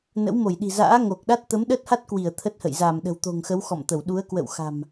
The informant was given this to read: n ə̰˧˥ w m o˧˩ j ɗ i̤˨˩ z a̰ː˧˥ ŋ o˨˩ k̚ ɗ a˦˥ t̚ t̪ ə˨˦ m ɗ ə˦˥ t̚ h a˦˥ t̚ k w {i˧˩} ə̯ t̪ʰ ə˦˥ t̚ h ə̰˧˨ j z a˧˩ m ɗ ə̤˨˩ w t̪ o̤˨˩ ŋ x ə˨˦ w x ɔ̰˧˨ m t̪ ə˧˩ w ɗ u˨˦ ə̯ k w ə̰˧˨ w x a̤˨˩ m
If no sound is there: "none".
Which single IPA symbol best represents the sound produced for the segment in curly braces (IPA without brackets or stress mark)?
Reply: i˧˩